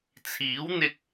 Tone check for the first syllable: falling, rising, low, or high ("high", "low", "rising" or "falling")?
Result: rising